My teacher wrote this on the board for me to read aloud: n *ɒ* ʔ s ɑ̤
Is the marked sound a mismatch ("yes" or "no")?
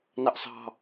yes